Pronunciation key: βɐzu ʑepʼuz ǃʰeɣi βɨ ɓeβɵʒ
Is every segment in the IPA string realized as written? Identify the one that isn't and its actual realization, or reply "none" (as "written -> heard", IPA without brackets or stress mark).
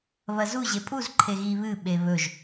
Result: none